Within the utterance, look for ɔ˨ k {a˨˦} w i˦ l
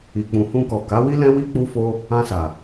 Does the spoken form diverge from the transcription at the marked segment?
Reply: no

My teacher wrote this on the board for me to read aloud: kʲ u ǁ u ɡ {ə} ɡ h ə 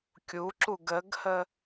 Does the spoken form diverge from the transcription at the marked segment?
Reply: no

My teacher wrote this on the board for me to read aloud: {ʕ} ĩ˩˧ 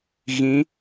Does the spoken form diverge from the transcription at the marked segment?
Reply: yes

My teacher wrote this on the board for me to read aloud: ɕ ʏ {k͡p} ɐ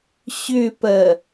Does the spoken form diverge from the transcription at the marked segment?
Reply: yes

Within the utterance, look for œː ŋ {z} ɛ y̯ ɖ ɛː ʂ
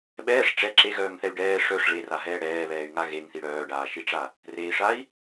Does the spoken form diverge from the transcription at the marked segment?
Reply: yes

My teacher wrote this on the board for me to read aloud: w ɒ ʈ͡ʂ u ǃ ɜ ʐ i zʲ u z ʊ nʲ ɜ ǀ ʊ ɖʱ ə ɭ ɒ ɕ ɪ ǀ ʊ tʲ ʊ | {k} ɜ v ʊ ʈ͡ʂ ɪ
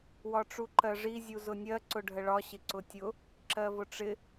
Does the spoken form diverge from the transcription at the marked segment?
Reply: yes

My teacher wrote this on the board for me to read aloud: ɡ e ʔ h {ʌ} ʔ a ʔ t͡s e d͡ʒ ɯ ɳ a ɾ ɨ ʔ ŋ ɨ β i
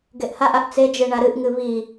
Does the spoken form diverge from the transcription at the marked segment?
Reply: yes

